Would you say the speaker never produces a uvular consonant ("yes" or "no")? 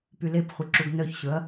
no